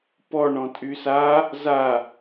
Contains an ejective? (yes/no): yes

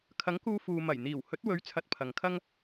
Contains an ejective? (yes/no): no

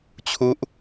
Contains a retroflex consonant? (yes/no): no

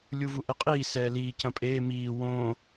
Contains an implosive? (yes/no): no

